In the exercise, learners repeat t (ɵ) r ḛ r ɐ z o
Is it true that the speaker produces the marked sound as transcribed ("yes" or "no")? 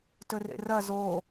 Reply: yes